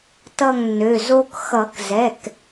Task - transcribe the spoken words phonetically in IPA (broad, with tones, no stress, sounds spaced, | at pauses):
t ʌ˦˨ ŋ nː ø˩˧˩ z o˦ k x ʌ˨˩˦ k z ɛ˩˧˩ k